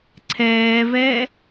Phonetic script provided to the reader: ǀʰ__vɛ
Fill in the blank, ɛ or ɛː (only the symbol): ɛː